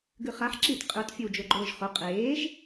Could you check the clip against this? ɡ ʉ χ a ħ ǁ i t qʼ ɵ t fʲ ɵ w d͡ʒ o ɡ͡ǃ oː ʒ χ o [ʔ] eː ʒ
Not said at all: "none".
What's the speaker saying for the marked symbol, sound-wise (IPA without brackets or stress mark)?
qʼ